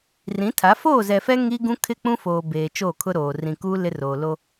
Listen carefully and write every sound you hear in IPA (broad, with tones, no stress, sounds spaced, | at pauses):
r ĩ˨˦ tʰ a˨˦ f oː˦˨ z ɛ˨ f ɛ˦ ŋ i˦ ɡ ũ˦ kʰ ɪ˦ k͡p ũ˦ f oː˨ b eː˨ t͡ʃ oː˦˨ kʰ ʊ˦ ɾ oː˨ r ĩ˨ k uː˦ l ɪ˦ r oː˨ l o˦